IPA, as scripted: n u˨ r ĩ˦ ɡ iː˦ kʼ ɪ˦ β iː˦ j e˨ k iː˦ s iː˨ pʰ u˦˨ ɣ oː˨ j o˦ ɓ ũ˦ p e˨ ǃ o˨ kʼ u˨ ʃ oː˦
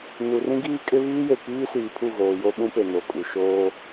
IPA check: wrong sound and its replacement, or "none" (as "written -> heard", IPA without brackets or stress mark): ǃ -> n